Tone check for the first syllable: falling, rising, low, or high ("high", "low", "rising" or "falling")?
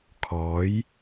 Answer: rising